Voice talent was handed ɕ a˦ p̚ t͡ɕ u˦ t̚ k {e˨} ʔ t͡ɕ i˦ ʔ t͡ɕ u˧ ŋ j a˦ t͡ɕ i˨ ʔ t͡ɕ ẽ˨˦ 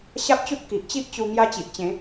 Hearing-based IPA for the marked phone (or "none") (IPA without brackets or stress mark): i˨